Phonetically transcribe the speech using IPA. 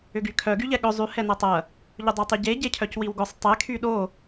ʏ ɡ y kʰ œ ɡ y ʎ ɛ ɠ ʏ zˤ y h ɛ n ɐ tˤ ɐ | ʎ ʊ dˤ i tˤ y ɟ e ɟ e cʰ œ c w i w ɡ ʊ sˤ tˤ ɛ kʰ y ɗ o

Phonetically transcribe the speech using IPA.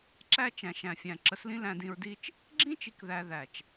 ǁ æ˦ t͡ʃ æ̃˨ ʃ æ̃˨ fʲ æ̃˨ ǁ ə˨˦ s l ĩ˦ l æ̃˧ d ĩ˧ ɹ d i˦ t͡ʃ | ɡ͡ǁ ĩ˦ t͡ʃ i˨ k ð æ˨ ð æ˨ t͡ʃ

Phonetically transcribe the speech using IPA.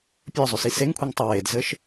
pʲ ə˞ zˤ ʏ s i s e ŋ kʷʰ i ŋ tˤ ə w e d z ɘ ʃ

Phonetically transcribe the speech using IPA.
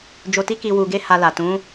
d͡ʒ o˧ t i˦ k i˧ w u˧ ɡ e˦ h a˧ l a˨ t ũ˨˦

